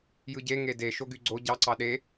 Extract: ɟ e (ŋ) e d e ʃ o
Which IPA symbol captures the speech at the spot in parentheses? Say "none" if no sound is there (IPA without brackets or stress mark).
ŋ